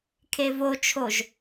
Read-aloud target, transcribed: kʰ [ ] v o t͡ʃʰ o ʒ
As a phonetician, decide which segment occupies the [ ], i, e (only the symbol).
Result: e